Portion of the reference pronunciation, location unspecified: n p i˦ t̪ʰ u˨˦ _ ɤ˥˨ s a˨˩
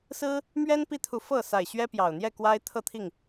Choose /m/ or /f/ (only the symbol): f